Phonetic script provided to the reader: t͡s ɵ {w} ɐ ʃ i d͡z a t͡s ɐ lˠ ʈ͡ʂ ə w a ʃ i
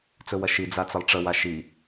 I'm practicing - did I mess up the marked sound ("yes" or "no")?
no